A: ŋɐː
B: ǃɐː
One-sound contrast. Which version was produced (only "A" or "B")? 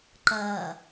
B